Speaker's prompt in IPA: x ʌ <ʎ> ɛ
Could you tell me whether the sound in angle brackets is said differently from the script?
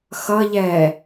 no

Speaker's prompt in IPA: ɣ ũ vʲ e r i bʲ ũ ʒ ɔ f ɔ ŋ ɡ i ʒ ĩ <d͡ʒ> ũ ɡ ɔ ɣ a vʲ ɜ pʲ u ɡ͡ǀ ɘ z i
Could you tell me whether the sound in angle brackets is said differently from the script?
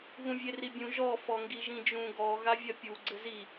no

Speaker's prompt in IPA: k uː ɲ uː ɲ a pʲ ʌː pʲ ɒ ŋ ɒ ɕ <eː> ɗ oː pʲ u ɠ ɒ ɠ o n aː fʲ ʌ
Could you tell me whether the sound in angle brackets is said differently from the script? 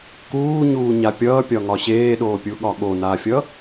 no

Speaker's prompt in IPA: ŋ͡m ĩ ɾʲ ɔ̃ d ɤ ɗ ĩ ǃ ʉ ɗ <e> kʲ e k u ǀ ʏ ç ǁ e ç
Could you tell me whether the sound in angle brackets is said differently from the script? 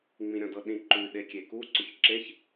no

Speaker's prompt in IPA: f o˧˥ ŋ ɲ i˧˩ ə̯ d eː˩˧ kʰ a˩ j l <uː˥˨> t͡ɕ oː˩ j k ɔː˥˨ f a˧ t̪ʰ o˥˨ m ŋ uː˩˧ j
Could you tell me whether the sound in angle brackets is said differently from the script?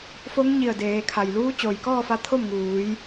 yes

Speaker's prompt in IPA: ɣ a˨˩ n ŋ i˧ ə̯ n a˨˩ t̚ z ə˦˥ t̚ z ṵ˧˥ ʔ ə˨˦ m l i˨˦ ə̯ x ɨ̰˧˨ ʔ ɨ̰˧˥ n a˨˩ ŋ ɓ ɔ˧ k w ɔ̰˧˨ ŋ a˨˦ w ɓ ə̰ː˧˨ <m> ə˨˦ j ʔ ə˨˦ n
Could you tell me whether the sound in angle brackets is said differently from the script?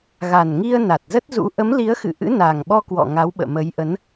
no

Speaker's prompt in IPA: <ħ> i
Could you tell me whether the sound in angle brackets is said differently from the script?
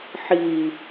no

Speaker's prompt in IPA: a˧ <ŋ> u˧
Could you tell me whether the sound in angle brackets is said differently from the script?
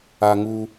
no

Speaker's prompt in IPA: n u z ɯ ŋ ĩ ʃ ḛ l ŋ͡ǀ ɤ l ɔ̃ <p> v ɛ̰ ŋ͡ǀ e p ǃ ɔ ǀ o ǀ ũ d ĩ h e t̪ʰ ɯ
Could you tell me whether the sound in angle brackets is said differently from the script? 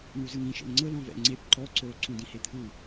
yes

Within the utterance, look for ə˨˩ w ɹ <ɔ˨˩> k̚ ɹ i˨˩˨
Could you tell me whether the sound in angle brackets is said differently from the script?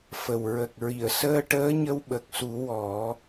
yes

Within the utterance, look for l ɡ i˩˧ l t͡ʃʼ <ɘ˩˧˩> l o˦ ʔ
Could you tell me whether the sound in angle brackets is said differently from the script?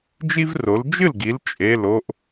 yes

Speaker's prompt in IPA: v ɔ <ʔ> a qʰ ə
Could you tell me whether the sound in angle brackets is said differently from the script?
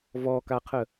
yes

